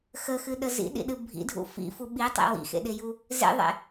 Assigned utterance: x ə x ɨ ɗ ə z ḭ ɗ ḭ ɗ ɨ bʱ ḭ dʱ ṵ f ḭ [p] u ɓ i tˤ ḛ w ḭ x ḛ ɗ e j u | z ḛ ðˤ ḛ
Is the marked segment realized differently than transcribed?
yes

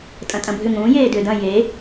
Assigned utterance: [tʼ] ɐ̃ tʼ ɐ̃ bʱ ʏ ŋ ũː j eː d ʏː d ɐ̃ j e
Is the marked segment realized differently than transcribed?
no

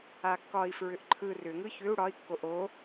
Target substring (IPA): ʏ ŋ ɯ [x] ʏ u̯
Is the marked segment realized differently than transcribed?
yes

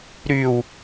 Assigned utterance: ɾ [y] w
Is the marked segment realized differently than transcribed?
no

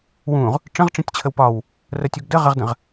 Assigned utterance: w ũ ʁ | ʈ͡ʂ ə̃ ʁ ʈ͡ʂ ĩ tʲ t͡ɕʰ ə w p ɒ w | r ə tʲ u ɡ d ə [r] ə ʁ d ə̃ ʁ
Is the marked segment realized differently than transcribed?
yes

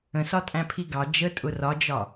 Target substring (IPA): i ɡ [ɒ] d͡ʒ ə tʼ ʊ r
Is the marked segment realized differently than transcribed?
yes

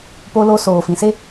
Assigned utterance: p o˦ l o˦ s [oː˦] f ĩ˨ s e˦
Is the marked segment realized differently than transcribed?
yes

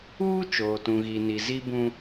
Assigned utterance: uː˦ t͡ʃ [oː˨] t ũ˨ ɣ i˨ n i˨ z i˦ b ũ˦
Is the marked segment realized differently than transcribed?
no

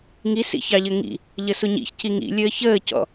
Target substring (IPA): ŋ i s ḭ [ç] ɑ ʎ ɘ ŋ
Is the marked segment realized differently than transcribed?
no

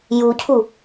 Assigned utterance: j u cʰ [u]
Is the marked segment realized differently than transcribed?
no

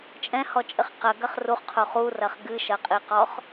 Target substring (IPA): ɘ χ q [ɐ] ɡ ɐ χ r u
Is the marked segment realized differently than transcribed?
no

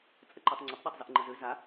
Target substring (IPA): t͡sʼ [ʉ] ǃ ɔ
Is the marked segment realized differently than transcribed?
yes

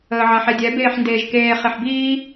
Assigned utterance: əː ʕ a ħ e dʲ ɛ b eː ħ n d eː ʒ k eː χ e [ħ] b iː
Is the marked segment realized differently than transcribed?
no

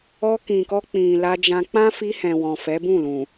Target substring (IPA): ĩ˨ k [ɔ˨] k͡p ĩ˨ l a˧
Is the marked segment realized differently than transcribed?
yes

